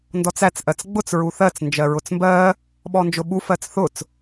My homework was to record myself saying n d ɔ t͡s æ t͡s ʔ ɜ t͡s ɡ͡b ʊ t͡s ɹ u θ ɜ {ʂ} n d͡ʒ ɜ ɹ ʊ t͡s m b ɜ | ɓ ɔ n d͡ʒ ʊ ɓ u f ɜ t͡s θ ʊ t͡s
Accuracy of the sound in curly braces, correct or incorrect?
incorrect